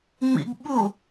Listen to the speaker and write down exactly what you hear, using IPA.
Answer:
ŋ͡m ḭ ɡ ɓ u

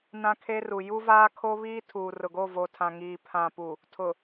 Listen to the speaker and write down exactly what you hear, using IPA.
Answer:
n ã˦ kʰ e˦ r u˨ j u˦ v aː˦ kʰ o˦ β iː˦ tʰ uː˨ r ʊ˨ ɡ o˦˨ v o˨ tʰ ã˨ ŋ iː˨ pʰ ã˨ p u˨ | tʰ ʊ˨

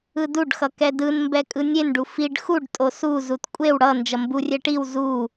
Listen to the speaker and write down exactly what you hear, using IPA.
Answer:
ɯ d u ɖ x ʌ k ɛ d ɯ n m b ɛ kʼ ɯ nʲ e n ɖ u f i ɖ x u ɖ tʼ o s u z u t kʷʼ e w ɽ ʌ n d͡ʒ ʌ m b u rʲ ɛ ʈ i w z u

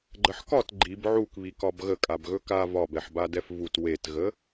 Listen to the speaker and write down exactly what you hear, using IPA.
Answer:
ɡ͡ǃ ə ħ k ɒ t ɡ͡ǃ i b ʕ u k β i k ɒ b ɣ ə kʼ a b ɣ ɵ k a v ɒ b ɛ ħ b a d ɛ f v u t w e t ɣ ə

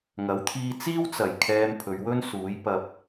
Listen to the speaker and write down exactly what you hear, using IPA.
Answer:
ŋ ɐ˨˥ w t̪ʰ iː˧ t͡s iː˥ w t͡s ɐ˨˩ j kʰ ɛː˧ m pʰ ɵ˨˧ ɥ w ɵ˥ n s uː˨˥ j p ɐ˨ p̚

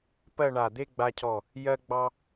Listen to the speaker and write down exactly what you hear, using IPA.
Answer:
p ɜ˥˧ ɳ a˧˩ d̪ e˥˧ ɡ͡b a˧ cʰ ɔ˧˩ | j ɜ˥ ɡ͡b ɑ˥

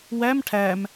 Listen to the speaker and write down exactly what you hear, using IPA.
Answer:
w æ m ʈʰ æ m

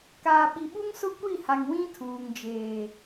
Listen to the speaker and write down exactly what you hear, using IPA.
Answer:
k aː˨ ɓ i˨ ɓ u˦ ŋ s ʊ˦ kʷ i˦˨ h a˨ ŋ w ĩ˦ tʰ uː˨ ŋ d͡ʒ eː˨

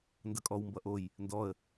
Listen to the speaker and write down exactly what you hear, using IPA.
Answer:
n d ʌ kʼ ɔ w m b ʌ ʔ o j | n d ɔ ə̯

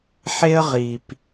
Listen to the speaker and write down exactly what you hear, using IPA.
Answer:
ħ e˦ ə̯ ʁ i˨ p

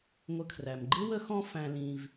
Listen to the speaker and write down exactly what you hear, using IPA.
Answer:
ŋʷ ə˨ kʰ r æ˩ m ɡ͡ǃ ɪ˥ w ə˦ x ɔ̃˦ f æ̃˨ l ĩ˨ v

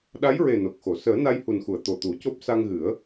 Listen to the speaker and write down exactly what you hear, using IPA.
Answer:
ɗ a˧˥ j ɹ e˨˩ n o˨˩ k̚ x o˨˩˨ s əː˨˩˦ n a˧ j h u˨˩ n x u˨˩˨ ə̯ t̪ o˨˩ t̪ u˨˩˦ c o˦˥ p̚ s a˧ ŋ ɣ ɨ˨˩˦ ə̯

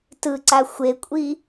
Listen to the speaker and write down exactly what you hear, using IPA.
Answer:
t ɯ ǀ a xʷ e kʷʼ i

